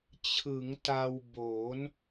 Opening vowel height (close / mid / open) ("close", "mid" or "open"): close